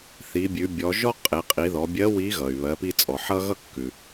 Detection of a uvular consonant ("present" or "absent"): present